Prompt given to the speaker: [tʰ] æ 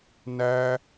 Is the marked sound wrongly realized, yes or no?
yes